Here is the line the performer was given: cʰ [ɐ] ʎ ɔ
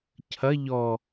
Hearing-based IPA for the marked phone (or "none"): ɐ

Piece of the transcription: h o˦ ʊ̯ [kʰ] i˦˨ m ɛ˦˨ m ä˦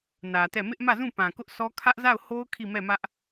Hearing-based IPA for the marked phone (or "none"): kʰ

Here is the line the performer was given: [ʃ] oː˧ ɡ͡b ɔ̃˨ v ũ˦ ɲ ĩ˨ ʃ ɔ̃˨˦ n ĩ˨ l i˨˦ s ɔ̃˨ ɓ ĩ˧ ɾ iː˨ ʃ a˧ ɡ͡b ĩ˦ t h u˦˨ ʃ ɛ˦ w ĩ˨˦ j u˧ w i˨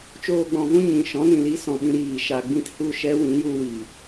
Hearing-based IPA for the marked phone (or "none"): t͡ʃ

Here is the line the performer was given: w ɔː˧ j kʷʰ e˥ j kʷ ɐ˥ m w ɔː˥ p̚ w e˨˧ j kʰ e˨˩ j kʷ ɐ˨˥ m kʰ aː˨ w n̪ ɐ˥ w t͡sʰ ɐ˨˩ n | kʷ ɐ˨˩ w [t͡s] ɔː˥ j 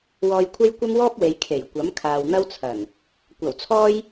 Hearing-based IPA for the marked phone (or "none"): t͡sʰ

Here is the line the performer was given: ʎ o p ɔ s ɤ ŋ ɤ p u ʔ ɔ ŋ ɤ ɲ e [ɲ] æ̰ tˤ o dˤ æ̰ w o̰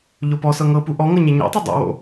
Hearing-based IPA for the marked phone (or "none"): ɲ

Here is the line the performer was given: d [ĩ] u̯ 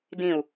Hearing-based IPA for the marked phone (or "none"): ĩ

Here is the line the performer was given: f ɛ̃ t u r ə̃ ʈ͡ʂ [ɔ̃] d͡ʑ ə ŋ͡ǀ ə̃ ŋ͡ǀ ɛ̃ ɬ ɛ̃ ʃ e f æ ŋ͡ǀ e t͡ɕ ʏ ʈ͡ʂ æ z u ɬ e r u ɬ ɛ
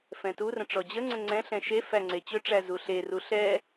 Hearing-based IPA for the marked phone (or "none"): ɔ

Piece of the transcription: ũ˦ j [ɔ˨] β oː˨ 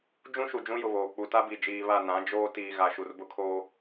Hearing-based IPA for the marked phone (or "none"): ʊ˨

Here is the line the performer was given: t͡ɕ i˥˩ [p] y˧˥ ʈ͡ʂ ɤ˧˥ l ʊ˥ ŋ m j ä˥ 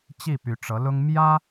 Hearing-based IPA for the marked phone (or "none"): p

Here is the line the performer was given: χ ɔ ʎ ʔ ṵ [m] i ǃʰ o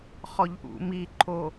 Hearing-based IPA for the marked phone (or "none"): m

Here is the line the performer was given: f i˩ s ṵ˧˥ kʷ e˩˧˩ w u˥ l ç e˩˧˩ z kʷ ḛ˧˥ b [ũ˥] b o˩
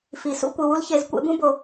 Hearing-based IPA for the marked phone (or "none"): ũ˥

